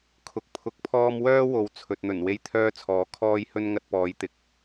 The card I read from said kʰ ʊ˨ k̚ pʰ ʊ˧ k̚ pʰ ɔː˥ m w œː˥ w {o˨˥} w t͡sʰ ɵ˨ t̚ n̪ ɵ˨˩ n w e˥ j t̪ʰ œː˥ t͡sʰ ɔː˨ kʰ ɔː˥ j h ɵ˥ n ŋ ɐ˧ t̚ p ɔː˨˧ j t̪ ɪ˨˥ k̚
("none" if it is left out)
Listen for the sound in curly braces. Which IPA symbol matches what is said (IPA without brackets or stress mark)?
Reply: o˨˥